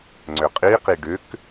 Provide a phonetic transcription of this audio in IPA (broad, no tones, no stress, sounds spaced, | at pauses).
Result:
ŋ͡ǀ ʏ qʼ i q i ɖ ʏ k